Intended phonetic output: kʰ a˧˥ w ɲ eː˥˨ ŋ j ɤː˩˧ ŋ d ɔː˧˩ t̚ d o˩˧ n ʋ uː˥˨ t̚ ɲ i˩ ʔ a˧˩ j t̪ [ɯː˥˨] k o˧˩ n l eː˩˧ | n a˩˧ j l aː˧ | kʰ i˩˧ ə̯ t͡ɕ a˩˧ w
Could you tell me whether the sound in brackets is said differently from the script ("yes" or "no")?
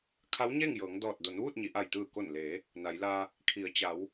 yes